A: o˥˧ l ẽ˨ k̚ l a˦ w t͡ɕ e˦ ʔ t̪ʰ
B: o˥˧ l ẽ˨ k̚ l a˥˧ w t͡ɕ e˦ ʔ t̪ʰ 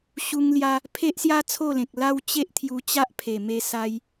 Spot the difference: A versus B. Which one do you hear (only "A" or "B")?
A